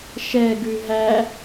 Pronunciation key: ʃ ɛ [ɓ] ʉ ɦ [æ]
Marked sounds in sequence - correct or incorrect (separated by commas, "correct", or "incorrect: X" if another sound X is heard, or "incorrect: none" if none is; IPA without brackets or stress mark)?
incorrect: ɡ, correct